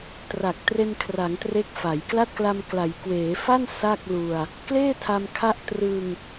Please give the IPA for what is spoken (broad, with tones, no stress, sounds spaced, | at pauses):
t r a˨˩ k̚ t r e˧ n kʰ r a˩˦ ŋ t r e˦˥ k̚ f a˩˦ j k l a˥˩ t̚ k l a˧ m k l a˩˦ j k w eː˩˦ f a˥˩ n s a˥˩ k̚ l u˧ a̯ | k l eː˥˩ tʰ a˧ m kʰ a˦˥ ʔ t r ɯː˧ ŋ